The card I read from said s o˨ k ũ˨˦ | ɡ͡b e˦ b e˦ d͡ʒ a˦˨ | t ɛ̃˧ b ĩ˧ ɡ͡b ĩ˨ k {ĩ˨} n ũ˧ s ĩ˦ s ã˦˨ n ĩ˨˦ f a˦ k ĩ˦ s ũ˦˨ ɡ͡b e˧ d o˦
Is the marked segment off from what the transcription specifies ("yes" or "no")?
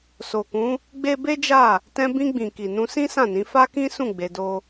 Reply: yes